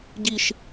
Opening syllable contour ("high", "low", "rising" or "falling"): falling